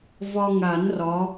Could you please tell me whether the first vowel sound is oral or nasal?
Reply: oral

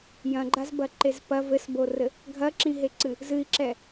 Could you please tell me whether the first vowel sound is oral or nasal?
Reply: nasal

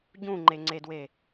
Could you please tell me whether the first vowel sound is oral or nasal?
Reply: nasal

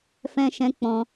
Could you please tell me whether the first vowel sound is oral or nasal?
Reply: nasal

